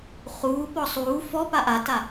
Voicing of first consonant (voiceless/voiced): voiceless